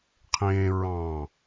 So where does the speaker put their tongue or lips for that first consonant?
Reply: uvula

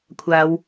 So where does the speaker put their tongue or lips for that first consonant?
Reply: velum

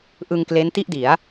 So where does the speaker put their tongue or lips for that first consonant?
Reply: throat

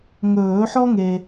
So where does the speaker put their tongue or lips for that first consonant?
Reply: velum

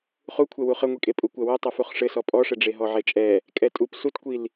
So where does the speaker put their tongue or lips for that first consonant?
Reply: uvula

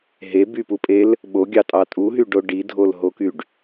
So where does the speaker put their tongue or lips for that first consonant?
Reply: throat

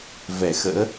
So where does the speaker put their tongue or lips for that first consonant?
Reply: lips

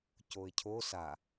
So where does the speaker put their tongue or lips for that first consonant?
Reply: palate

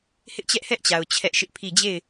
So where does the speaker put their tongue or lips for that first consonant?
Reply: throat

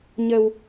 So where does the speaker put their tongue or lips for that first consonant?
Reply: palate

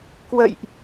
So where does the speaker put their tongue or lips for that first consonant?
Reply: velum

